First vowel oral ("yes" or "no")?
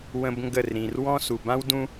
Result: no